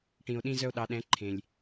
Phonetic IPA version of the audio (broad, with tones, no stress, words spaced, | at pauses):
ʈĩ˧o̯ɗĩ˥zœ˥o̯ɗɑ˧˥ ɗɛ̃˧˥ ǃʰẽ˧lʲ